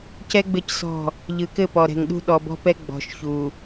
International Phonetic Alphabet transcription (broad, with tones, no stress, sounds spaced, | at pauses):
c ɛ˦ ɡ͡b ɘ˦˨ c s ɔ̤˦˨ | ʎ ɯ˨ k ɘ˦˨ p ɔ˨ ɾ ɛ̤˨ ŋ ɗ ṳ˦ ɗ ɔ˨ b ɔ̤˦ p ɛ˦ ɡ͡b ɔ̤˨ ʃ ç u˨